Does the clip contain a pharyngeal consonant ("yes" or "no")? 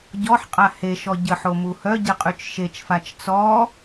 yes